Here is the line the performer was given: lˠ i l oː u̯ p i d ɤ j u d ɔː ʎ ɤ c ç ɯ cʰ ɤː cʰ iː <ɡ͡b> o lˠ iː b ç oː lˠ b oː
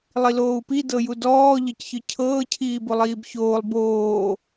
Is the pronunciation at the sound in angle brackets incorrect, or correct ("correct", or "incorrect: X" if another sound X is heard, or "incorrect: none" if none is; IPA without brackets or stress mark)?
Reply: incorrect: b